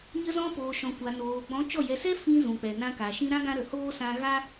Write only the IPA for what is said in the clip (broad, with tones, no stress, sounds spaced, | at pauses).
ɲ ə˧ z ɔ̃˧ p oː˨ ʃ ɔ̃˨ kʷ a˨ n oː˨ ɡ͡b ɔ̃˨˦ t͡ʃ ɔ˦˨ j ɛ˧ s ɛ˦ f ĩ˧ z ũ˨ k͡p ɛ˨ n ã˧ k a˨ ʃ ĩ˧ ɾ ã˦ ɡ ã˧ ɾ ə˨ h oː˦ s ã˧ ɣ a˦